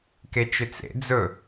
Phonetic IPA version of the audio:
k e t͡ʃ ʏ t͡s ḛ d͡z ɵ

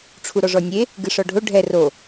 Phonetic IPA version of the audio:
ʈ͡ʂʰ u ɾ ɔ ʐ ɔ nʲ e | ɡ ɨ ʂ ɔ ɖʱ o ɖʱ ɛ r o

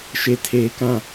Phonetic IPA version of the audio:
ʃ e˨ tʰ eː˨ k ã˦˨

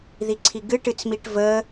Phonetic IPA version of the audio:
ð i ǀʰ i ɡ ɨ ʈ ɨ t͡s m i ʈ v ə

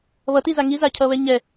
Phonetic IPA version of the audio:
β ʌ t i z a ŋ i z a cʰ ʌ β ɛ ɲ ɛ

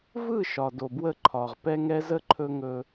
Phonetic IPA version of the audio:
v ɯ˦˨ ʃ ɒ˨ d o˨ b w ə˦˨ ǃʰ ɒ˨ ʁ p ɛ˦ ŋ ɛ˦ z ə˦ ǃʰ ɵ˦ ŋ ɵ˦

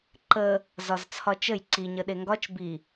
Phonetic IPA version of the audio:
ǃ ə | z ɒ z t͡sʰ ɒ t͡ʃ ə j ǀ i ɲ ə ɗ e ŋ ɡ ɒ t͡ʃ b i

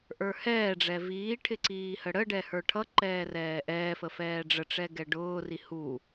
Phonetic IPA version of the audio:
ʔ ə˞ h ɛː ɖ͡ʐ ɛ v iː ʈʰ ɪ ǀ iː h ə ɽ ə ɖ ɛ h ə˞ ʈʰ ʌ ǃ ɛː r ɛː ʔ ɛː f ə f ɛː ɖ͡ʐ ə ʈ͡ʂ ɛ ɡ ɛ ɖ ʊː r i h u

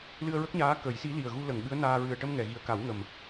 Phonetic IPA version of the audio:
l ɨ˧ ə̯ ɹ ə˦˥ k̚ ɲ aː˧˥ k ə˨˩˦ j s i˧˥ l i˨˩ ə̯ ɣ u˧ l ə˨˩˨ ŋ ɓ ɨ˧˥ ə̯ n aː˧ ɹ ɨ˨˩ ə̯ ʈ ə˧ m ŋ ɛ˨˩˨ ɣ i˨˩ ə̯ k a˨˩˦ w ŋ ə˨˩ m

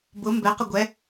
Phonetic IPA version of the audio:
b ʊ m b ɛ q ə ɡʷ ɛ

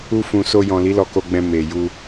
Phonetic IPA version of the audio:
u˧ f ũ˨ s o˧ j ɔ̃˨ l i˨˦ l ɔ˧ k o˧ ɡ͡b ɛ̃˧ m e˨ j u˧

